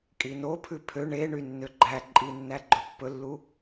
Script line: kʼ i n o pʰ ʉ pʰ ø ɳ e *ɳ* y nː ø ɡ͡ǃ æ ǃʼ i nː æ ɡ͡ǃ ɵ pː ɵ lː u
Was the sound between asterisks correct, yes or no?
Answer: yes